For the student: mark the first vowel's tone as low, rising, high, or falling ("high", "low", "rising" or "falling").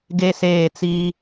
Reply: high